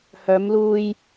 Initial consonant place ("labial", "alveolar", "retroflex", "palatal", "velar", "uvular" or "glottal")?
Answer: glottal